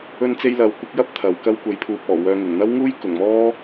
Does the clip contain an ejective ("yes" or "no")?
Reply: no